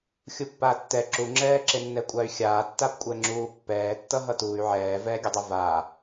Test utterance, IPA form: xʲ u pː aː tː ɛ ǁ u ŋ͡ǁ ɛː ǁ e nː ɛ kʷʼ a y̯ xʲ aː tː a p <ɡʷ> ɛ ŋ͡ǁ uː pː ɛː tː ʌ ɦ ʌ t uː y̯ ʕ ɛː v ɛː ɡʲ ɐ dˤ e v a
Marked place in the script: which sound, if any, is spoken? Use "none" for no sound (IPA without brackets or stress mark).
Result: kʷʼ